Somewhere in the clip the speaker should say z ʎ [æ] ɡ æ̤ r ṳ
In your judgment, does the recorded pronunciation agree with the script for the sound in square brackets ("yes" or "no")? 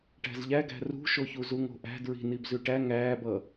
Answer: yes